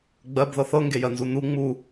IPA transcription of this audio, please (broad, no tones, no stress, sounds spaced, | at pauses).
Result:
ɡ͡b ɜ b ð ɤ θ ɤ ŋ ɡ e j ɜ n z u n u ŋ͡m u